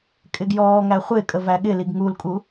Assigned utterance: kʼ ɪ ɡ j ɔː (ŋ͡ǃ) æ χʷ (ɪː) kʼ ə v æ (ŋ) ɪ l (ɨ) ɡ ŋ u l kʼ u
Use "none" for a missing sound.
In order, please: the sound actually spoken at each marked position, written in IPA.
ŋ, ɪː, ɠ, i

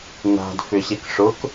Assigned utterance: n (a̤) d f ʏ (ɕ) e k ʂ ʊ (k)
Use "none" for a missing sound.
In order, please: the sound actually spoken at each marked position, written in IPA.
a̤, ɕ, k

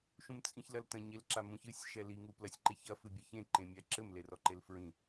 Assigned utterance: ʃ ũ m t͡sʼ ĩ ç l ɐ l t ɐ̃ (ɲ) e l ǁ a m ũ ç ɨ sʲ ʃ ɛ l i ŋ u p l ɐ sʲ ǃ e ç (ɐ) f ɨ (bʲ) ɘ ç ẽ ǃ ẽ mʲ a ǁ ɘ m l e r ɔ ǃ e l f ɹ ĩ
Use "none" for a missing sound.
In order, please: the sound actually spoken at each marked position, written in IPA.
ɲ, ɐ, bʲ

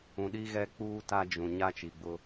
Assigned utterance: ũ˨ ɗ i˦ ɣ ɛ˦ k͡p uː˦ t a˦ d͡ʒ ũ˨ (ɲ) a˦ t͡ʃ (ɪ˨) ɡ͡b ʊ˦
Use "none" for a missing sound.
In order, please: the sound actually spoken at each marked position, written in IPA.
ɲ, i˨

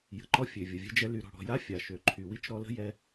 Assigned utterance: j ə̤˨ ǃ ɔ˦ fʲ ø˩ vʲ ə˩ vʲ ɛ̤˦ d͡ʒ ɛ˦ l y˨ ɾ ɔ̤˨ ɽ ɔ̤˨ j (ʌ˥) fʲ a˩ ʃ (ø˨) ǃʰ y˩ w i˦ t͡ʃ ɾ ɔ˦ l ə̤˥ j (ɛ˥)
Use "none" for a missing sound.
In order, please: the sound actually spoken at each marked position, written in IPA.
a˥, ø˩, ɛ˦

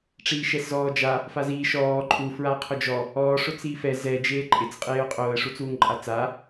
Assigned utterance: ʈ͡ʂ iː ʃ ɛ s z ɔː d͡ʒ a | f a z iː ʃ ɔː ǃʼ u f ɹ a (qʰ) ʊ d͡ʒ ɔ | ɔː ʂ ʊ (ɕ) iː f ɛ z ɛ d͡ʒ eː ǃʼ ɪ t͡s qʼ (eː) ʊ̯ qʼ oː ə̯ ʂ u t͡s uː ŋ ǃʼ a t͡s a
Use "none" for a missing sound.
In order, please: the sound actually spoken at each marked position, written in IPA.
qʰ, t͡s, eː

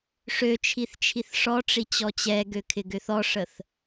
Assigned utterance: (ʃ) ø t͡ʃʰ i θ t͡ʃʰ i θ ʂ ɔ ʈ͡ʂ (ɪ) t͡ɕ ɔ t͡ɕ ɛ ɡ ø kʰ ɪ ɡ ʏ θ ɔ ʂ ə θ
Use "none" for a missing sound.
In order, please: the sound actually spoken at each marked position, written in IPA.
ʂ, i

